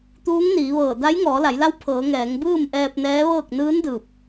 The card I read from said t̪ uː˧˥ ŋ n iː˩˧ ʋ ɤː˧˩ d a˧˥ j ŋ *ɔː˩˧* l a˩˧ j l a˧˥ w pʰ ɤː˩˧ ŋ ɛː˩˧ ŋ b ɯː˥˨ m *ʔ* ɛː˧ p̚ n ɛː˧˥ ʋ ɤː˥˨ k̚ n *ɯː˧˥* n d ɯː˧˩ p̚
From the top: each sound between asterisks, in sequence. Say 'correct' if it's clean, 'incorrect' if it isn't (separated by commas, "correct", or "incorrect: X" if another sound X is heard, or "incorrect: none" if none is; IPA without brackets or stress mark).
correct, correct, correct